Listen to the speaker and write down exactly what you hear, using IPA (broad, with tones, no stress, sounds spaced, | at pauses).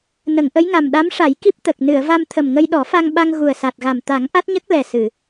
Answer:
n ə˨˩˨ ŋ ʔ ə˧˥ j ŋ a˨˩ m ɗ a˧˥ m ʂ a˨˩˦ j k i˦˥ p̚ t̪ ə˨˩ k̚ n ɨ˨˩˨ ə̯ v a˧ m t̪ʰ ə˨˩ m ŋ ə˧ j ɗ ɔ˨˩˦ f a˧ ŋ ɓ a˧ ŋ ɣ u˨˩ ə̯ s a˨˩ t̚ ɣ a˨˩ m t̪ a˨˩˦ ŋ ʔ a˦˥ t̚ ɲ ə˦˥ k̚ l ɛ˨˩ s ɨ˨˩˨